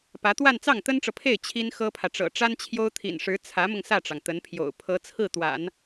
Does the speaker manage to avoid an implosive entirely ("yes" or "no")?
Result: yes